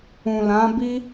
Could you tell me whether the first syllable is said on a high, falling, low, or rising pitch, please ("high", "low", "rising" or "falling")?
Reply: low